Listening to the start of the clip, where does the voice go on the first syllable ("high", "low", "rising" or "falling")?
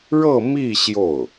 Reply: falling